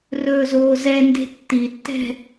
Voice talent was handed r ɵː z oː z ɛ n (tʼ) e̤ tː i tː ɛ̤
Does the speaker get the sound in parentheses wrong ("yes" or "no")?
yes